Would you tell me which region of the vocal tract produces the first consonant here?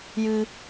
palate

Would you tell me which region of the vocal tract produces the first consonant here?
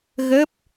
velum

